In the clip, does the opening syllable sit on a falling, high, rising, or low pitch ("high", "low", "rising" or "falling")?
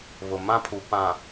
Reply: low